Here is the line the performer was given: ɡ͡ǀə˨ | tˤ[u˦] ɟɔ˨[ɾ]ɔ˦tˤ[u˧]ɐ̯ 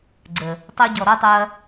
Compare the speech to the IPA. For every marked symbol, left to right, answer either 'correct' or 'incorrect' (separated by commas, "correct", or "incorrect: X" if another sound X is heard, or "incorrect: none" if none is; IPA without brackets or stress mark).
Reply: incorrect: o˦, correct, correct